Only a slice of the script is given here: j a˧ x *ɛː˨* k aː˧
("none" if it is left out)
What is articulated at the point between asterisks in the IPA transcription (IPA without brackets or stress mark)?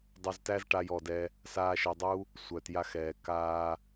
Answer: ɛː˨